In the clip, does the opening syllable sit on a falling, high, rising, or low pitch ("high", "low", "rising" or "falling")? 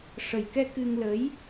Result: low